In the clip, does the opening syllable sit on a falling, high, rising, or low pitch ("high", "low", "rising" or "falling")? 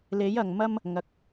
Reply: rising